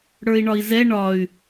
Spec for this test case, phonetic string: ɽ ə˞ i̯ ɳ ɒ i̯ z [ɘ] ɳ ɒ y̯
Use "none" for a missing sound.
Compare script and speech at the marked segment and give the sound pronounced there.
ɛ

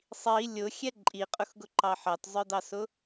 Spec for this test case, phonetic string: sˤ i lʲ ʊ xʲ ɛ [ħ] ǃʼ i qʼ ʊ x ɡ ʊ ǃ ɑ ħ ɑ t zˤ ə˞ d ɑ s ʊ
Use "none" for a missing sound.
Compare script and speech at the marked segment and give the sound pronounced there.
none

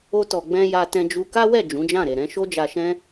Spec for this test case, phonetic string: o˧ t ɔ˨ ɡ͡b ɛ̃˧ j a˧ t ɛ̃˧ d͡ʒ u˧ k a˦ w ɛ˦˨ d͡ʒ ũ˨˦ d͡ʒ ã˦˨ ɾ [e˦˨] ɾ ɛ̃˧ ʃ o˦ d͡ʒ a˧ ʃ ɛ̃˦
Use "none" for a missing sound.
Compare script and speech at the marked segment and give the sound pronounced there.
e˨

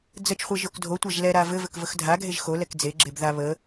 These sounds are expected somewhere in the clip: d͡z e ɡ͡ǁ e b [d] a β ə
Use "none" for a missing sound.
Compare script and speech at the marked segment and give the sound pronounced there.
ð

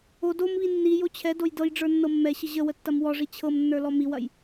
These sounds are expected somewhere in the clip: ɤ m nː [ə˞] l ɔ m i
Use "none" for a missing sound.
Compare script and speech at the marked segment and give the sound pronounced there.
ə˞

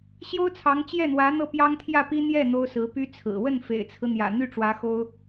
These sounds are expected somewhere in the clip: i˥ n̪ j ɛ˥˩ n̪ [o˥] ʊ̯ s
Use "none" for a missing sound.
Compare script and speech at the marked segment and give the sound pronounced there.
o˥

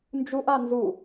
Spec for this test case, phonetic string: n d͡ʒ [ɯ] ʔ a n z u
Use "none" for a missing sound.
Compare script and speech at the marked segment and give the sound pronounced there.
u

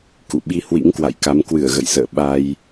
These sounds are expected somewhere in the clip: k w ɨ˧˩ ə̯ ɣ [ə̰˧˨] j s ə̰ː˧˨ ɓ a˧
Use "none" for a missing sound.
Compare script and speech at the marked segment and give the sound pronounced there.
ə̰˧˨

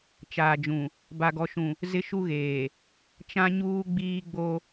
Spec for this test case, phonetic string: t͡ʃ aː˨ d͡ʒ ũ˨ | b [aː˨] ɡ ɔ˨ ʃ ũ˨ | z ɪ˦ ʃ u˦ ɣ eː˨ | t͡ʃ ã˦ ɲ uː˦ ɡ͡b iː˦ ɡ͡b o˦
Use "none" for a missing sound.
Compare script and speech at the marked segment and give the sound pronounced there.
a˨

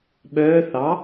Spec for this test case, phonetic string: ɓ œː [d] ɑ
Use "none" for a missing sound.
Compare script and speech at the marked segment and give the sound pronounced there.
θ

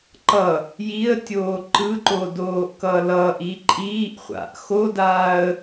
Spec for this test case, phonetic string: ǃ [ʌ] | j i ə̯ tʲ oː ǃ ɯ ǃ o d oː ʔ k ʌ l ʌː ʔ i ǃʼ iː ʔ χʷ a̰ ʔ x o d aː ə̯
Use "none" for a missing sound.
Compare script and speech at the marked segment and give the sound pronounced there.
ʌ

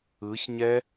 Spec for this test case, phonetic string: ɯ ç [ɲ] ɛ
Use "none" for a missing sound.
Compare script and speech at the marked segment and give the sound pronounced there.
ɲ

